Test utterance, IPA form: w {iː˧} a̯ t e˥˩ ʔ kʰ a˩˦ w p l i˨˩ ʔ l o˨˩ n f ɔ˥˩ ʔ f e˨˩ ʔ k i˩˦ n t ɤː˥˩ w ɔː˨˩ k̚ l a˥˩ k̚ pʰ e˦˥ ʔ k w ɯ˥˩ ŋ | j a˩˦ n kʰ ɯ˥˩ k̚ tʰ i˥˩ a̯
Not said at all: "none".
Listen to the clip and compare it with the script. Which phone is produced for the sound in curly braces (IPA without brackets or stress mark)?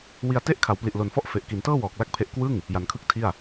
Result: i˧